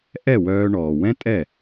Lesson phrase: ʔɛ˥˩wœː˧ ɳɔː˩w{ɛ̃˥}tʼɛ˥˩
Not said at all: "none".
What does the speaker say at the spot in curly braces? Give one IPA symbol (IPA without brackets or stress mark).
ɛ̃˥